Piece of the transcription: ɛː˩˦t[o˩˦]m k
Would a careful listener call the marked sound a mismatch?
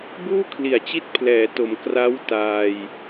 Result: no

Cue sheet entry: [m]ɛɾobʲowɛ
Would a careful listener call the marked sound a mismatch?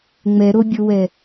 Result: yes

